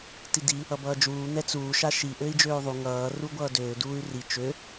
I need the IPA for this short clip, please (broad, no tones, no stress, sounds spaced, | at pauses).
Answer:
t i d i | ʌ b ʌː d͡ʒ uː n̪ ɛ t͡s uː ʃ a ʃ i ʔ ø i̯ d͡ʒ øː u̯ ðˤ u ŋ ʌː r u ɡʷ ʌː d øː d uː y̯ r i t͡ʃ ø